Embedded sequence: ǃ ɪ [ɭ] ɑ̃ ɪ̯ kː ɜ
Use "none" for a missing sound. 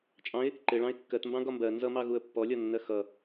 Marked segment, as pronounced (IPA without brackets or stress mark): ɭ